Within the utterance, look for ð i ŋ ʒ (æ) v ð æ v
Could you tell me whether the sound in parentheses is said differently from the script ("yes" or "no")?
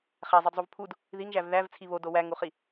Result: no